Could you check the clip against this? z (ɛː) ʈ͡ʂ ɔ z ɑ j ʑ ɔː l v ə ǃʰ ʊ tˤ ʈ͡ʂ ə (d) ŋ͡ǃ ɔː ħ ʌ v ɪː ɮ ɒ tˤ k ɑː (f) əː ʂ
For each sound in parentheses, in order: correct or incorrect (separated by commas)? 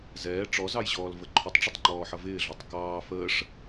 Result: correct, incorrect, correct